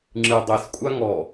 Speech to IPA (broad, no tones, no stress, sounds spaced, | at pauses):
ŋ͡ǁ ɨ dˤ e s kʷʼ a ŋ ɔ